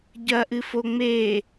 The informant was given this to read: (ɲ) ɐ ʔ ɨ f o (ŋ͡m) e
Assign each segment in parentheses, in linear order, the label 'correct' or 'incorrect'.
incorrect, correct

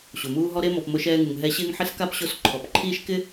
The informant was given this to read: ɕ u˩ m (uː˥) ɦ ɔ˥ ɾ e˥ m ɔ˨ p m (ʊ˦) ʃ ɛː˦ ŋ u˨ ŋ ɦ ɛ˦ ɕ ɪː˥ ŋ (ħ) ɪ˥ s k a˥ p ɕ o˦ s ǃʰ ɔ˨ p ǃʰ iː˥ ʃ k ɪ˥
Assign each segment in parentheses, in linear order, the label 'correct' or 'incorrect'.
correct, correct, correct

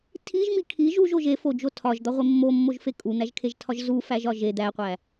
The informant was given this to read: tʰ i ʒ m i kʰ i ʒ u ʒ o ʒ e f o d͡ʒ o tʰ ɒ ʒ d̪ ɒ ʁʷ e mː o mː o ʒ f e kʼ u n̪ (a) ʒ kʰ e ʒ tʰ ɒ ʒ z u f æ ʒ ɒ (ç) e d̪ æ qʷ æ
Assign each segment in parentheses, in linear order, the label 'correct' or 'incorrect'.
incorrect, incorrect

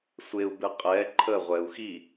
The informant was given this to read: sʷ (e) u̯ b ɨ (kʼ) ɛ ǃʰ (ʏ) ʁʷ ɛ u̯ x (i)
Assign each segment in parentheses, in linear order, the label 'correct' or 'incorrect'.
correct, incorrect, incorrect, correct

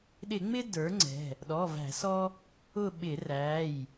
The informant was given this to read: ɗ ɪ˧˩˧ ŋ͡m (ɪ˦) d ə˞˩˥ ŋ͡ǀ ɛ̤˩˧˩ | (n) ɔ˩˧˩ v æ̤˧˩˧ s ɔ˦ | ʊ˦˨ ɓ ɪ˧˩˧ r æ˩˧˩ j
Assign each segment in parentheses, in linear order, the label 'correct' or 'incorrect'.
correct, incorrect

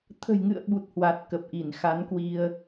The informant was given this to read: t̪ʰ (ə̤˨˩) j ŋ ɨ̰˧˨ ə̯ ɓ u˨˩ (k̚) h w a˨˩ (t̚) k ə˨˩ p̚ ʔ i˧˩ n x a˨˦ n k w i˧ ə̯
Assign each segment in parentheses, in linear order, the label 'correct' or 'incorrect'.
correct, incorrect, correct

